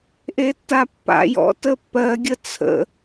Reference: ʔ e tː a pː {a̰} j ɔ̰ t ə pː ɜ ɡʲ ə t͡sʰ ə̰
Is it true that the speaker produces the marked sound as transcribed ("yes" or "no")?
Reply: yes